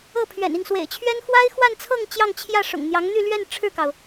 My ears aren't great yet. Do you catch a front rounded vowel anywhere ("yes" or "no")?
yes